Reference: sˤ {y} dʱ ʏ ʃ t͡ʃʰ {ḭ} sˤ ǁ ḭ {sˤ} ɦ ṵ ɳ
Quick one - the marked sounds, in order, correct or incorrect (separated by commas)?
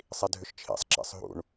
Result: incorrect, correct, correct